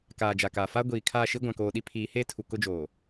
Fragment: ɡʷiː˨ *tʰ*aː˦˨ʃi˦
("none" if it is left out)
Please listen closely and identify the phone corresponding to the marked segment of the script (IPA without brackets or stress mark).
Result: kʰ